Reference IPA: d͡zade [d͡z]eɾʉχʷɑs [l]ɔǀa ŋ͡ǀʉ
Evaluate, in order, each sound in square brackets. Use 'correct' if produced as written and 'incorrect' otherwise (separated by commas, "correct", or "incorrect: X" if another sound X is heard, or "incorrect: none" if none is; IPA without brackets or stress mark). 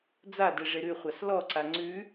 incorrect: ʐ, correct